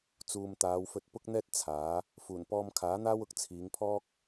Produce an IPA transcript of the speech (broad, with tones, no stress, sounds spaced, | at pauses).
t͡s uː˨ m t̪ aː˨˧ w f ɵ˧ t̚ p ʊ˥ k̚ n̪ ɛː˥ t̚ t͡sʰ aː˨˥ | f uː˨˩ n p ɔː˧ m kʰ aː˨˥ n̪ aː˥ w ʊ˨ k̚ t͡sʰ iː˨˧ ŋ pʰ ɔː˥ k̚